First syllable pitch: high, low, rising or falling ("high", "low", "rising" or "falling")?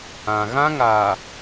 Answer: low